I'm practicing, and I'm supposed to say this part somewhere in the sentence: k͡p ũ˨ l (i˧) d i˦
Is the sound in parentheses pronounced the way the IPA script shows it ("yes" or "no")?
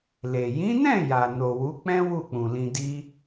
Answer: no